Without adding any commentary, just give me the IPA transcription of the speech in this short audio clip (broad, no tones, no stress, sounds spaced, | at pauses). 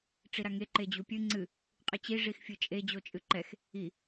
ʈ͡ʂ i ɾ a ŋ e ǃ e d͡ʑ u pʲ ɨ ŋ͡ǀ ɨ | qʼ ɨ t͡ɕ i ʐ i x fʲ ɨ t͡ʃʼ e d͡ʑ o t͡ʃʼ ɨ ǃ ɛ x | i